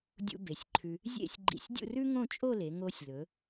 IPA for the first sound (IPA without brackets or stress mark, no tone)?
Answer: dʲ